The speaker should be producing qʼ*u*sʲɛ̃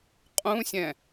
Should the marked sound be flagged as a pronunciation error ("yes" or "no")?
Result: yes